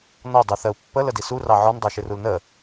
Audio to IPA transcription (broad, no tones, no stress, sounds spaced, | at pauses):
n ɔ dˤ u θ ɜ u̯ pː ə l ə d i s u r ɑ ʕ ɔ n dˤ ɜ ʃ ɪ r u l n ə